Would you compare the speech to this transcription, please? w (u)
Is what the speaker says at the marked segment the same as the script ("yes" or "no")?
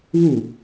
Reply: yes